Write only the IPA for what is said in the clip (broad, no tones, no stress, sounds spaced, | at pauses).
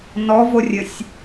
n ɔ v o rʲ ɘ sʲ